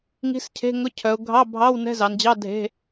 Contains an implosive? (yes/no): no